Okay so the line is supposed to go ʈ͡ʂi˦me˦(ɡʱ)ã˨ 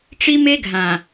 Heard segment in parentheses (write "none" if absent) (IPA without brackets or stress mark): ɡʱ